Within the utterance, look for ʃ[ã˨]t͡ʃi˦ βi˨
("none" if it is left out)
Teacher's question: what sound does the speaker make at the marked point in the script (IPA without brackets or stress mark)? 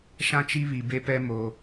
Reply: ã˦